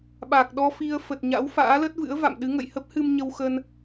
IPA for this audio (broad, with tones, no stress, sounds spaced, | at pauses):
ɓ a˨˩ k̚ ɗ ɔ˧ f i˧ ə̯ f ə˨˩ t̚ ɲ a̰˧˥ w f a̰ː˧˥ l ə˦˥ t̚ v ɨ̰˧˥ ə̯ v a̰˧˨ m ɗ ɨ˨˦ ŋ ə̰˧˨ j h ə˦˥ p̚ h ɨ˧ m ɲ ə˧ w x ə˧ n